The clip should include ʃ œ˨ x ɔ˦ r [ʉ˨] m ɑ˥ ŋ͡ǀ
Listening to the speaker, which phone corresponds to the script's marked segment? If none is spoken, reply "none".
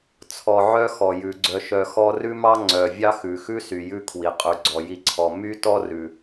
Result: ʉ˥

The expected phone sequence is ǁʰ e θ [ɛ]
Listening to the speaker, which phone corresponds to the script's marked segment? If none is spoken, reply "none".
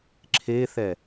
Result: ɛ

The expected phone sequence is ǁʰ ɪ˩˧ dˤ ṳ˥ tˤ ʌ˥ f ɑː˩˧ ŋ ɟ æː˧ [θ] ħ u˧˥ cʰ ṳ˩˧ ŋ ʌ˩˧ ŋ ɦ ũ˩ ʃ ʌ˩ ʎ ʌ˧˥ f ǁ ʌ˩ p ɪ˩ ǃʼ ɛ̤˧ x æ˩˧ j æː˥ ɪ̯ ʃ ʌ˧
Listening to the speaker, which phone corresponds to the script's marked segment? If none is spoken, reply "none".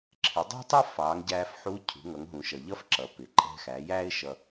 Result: f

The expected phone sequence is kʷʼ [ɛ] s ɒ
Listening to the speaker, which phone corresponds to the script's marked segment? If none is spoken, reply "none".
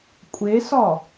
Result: e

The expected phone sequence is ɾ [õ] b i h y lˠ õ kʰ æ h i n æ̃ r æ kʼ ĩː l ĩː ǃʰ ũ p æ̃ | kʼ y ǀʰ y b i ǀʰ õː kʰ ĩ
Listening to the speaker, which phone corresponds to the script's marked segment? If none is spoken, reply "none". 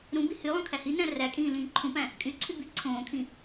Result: ũ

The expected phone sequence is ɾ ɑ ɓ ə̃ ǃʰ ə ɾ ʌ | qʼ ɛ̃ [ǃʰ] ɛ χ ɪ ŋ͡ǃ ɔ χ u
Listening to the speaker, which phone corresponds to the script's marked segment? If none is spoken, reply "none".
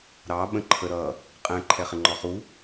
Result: ǃʰ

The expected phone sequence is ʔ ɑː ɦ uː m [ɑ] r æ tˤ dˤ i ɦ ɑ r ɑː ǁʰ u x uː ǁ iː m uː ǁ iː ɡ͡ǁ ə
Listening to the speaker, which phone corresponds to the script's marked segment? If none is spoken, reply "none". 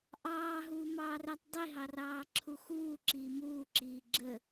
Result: ɑː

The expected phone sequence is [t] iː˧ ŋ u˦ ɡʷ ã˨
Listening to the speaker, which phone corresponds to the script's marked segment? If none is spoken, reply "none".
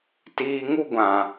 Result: t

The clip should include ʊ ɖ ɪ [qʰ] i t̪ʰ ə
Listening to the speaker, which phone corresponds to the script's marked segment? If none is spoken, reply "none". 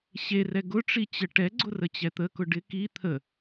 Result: k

